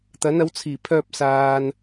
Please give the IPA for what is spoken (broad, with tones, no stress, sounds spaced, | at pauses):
t̪ ɐ˨˥ n ɐ˨˥ w t͡sʰ iː˨˩ pʰ œː˧ p̚ s aː˨ n